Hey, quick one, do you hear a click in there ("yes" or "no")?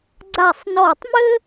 yes